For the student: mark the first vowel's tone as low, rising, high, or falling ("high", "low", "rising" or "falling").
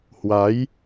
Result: rising